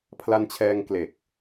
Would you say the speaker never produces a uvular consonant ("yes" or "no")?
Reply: yes